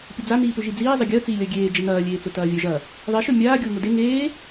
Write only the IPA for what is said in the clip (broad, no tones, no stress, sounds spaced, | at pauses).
pʲ ə d͡z a n iː p ʏ ʒ i d͡z iː zˤ ə ɡʲ əː t͡s iː lʲ ɐ ɡʲ eː d͡ʒ ə n ɐː lʲ eː t͡s ʊ t ɐː vʲ œ ʒ ɐ | ðˤ e ʃ œ mʲ aː ɡʲ ʊː ŋ ʊ d e ŋ eː